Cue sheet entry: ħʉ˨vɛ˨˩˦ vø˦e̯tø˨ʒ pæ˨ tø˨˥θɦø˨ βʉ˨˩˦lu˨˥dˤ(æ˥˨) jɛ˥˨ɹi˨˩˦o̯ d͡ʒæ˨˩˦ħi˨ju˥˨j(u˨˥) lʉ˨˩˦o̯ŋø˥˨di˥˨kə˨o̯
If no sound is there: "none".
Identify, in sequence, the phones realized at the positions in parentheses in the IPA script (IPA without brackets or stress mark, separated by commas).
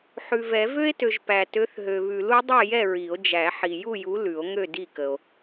ɛ˥˨, u˨˥